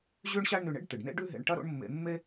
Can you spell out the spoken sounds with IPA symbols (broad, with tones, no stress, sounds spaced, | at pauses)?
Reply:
ʑ ʉ˥ ɳ ɕ a˥ ɳ n ʉ˧ ɳ ḛ˥ ɖ t̪ ɨ˩ ɖ n ḛ˥ ɖ ʉ˥ ɦ ḛ˧ ɳ ʈ ɐ˥ ɾ o̰˥ ɳ mː ḛ˧ mː e˥